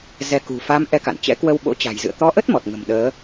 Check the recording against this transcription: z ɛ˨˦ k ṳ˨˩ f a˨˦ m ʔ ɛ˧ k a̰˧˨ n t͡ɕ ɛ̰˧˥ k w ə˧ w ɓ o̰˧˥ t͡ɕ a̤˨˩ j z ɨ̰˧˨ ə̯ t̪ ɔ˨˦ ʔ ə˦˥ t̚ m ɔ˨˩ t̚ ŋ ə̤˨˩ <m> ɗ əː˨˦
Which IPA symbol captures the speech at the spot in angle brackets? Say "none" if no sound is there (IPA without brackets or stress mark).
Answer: m